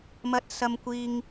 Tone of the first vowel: low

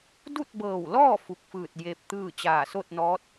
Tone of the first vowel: falling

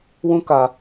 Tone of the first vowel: high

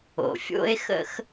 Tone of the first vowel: low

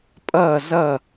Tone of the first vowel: falling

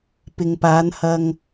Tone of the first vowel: low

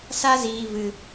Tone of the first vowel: high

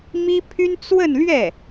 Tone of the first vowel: high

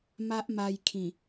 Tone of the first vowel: high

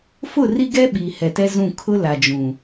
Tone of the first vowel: falling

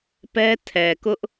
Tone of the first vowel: high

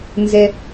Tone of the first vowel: low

